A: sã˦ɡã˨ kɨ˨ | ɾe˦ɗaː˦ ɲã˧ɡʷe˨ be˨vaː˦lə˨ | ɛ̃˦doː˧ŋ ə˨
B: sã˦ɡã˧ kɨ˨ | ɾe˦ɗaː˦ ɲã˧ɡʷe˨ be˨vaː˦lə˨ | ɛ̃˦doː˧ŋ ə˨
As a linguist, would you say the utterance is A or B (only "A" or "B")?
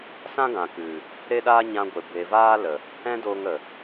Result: A